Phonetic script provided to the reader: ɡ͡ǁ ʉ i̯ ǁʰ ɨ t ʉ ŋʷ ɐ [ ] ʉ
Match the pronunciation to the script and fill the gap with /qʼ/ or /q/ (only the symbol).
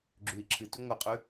qʼ